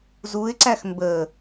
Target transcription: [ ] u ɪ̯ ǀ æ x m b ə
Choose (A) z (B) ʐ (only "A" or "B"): A